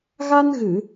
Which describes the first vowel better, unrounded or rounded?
unrounded